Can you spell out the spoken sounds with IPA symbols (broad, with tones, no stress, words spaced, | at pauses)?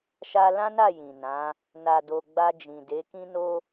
ʃa˧lã˦na˦˨ jĩ˨nã˨˦ | na˨do˨ ɡ͡ba˧d͡ʒĩ˨de˨˦ kĩ˦no˦